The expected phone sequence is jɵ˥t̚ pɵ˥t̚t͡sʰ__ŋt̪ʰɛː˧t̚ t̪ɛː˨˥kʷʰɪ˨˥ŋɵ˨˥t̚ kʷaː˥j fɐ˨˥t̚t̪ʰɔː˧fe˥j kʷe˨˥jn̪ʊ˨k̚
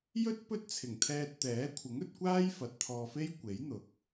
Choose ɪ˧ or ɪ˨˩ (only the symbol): ɪ˨˩